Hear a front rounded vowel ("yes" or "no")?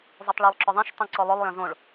yes